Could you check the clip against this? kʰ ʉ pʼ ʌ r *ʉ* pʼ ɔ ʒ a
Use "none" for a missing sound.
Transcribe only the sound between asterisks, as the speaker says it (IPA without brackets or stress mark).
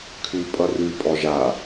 ʉ